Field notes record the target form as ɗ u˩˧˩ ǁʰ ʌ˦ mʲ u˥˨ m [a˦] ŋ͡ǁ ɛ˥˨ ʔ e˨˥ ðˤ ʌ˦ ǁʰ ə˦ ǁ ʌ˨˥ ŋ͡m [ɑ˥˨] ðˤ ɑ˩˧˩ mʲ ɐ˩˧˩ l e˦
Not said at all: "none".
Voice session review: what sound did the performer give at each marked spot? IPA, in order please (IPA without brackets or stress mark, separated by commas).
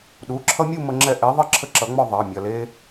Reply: ə˦, ɔ˥˨